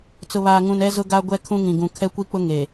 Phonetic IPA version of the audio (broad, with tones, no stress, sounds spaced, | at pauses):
t͡s ʊ˨ β aː˨ ŋ ũ˨ n ɛ˦ z ʊ˦ ɡ a˦ ɡʷ ɛ˦ kʰ ũ˦ ŋ ĩ˨ ɡ ũ˨ kʰ ɛ˦ kʷ i˦ k͡p ʊ˦ ŋ e˨